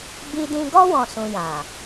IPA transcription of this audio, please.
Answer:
b i˧ d ĩ˧ ɡ ɔ˦ w ɔ̃˦˨ s ũ˧ j ã˨

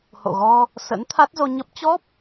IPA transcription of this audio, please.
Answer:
h o̰˧˨ ɣ ɔ˧ | s ə̰˧˥ n t̪ʰ a˦˥ t̚ z o˧ ɲ ə˦˥ p̚ t͡ɕ ɔ˦˥ p̚

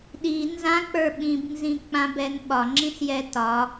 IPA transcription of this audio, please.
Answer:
ɗ i n z ã k͡p ə˞ ɓ ĩ b n z ĩ k͡p ã b ɛ n ɓ ɒ ŋ͡ǁ ĩ s j ɛ t ɒ

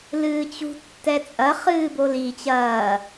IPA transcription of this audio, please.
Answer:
l ɨː t͡ɕ ṳ tː ɛ t͡sʼ ɐ χ ɨː b o l i t͡ɕ ɐː

